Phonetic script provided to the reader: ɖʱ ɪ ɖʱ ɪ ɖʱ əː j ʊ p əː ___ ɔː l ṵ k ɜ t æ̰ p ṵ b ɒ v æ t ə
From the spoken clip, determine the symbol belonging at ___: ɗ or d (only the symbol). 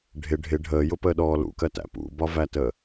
ɗ